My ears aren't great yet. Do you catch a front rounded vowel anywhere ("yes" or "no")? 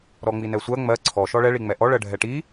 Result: no